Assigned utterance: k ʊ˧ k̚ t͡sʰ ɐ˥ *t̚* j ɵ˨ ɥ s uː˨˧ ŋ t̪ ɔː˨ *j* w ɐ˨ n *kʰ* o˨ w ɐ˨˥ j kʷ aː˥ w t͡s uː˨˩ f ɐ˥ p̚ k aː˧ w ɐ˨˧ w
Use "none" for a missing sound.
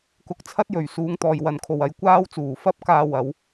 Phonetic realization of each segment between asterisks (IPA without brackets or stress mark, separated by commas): t̚, j, kʰ